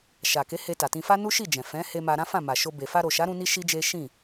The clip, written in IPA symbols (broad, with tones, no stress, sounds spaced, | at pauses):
ʃ a˨ k e˨˦ h e˧ t a˨ t ĩ˧ f a˦ n u˦ ʃ i˦˨ d͡ʒ ɛ̃˨ f ɛ̃˨˦ h e˧ m a˧ ɾ ã˦ f ã˦˨ m a˨ ʃ o˧ b e˨ f a˧ ɾ o˨ ʃ a˨˦ ɾ ũ˧ n i˧ ʃ i˦ d͡ʒ e˦ ʃ ĩ˦˨